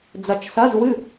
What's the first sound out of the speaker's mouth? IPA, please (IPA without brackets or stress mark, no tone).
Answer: d͡z